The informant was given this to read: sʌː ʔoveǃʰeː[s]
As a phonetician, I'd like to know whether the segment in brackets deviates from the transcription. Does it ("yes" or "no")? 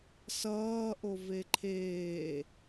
yes